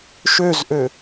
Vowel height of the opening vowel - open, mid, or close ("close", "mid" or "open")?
mid